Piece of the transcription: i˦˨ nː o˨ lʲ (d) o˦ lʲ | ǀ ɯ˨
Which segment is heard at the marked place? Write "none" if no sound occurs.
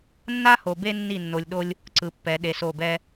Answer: ɗ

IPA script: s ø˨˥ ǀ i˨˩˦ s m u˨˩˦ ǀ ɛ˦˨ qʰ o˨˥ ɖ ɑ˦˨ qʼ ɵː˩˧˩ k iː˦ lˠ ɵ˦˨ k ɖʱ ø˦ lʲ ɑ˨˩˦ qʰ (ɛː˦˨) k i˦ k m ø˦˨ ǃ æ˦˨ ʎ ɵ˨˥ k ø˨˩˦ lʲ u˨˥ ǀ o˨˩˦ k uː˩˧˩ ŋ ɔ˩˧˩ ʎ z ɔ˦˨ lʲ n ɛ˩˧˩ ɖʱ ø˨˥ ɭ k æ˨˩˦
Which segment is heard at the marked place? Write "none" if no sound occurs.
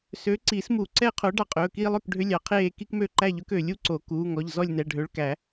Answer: eː˦˨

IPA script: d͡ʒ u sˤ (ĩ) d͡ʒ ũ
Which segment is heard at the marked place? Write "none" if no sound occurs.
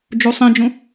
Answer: ĩ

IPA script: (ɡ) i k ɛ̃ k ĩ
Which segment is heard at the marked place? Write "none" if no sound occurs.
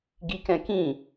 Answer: ɡ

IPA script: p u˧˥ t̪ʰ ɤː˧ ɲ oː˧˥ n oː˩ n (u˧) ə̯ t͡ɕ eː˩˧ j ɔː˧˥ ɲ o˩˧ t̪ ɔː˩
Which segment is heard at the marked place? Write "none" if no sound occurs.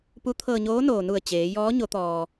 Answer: u˧˩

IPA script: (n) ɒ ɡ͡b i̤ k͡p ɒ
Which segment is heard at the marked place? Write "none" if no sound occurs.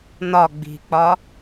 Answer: n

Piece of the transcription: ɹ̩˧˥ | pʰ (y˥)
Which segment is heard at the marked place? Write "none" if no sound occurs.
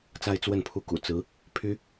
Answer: y˥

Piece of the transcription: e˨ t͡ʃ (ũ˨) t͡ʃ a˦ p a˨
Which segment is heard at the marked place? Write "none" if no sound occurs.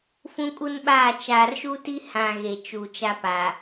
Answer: u˨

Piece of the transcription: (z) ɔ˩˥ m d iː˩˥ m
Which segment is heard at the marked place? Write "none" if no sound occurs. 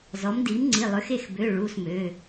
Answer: z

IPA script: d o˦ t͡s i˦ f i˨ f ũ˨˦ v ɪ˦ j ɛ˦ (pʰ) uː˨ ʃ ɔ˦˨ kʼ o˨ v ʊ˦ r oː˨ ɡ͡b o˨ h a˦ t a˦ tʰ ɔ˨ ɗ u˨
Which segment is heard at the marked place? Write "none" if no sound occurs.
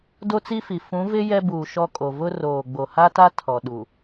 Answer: b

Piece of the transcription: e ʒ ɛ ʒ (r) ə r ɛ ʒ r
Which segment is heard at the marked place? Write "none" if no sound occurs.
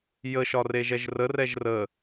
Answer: r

